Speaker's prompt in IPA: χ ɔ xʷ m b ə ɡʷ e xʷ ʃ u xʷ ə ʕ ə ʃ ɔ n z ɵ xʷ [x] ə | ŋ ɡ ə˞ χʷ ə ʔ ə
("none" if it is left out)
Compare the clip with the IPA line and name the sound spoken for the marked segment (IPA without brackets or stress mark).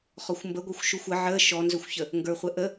ç